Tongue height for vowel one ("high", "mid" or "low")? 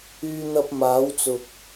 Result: high